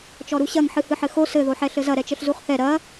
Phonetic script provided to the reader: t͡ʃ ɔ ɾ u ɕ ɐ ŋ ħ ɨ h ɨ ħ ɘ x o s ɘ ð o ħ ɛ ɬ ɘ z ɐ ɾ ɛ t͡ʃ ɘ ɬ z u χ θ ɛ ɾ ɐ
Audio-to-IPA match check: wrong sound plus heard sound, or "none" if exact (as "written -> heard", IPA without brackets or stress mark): none